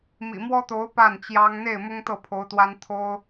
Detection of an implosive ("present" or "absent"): absent